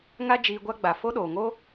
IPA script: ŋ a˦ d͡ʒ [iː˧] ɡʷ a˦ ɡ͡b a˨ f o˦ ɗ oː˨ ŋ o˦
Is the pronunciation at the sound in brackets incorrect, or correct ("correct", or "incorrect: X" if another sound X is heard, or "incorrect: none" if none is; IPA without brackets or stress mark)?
correct